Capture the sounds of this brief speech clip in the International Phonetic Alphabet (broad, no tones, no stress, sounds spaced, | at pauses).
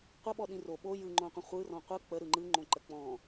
qʷ ə ɓ ɔ ɗ ĩ r o ɓ o j ɯ ŋ͡ǃ õ qʷ ə̃ χʷ ɯ r ɔ̃ qʷ ɯ k͡p ə ɾ ɯ ŋ͡ǃ ɯ ŋ͡ǃ õ ǃ ə k͡p ɔ̃